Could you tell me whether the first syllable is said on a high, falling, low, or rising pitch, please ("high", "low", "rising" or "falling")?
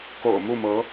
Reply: low